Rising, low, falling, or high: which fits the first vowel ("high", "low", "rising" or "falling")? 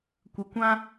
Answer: low